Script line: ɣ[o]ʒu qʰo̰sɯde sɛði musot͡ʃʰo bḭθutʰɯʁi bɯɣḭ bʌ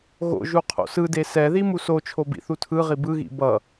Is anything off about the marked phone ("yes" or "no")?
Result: yes